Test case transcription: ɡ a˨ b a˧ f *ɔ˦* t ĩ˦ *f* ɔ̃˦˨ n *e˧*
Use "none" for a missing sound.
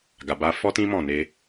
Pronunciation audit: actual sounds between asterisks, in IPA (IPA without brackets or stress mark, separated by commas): ɔ˦, m, e˧